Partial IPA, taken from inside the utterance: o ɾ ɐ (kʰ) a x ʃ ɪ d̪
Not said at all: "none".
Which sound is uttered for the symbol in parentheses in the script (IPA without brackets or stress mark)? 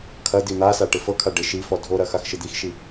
x